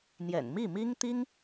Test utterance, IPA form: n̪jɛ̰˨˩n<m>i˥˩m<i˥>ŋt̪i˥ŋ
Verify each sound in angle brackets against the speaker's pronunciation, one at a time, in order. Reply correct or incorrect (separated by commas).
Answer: correct, correct